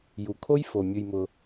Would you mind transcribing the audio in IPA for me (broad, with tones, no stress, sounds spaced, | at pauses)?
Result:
j u˨ kʰ o˦ j f o˨ mʲ ʊ˧ j m ʊ˧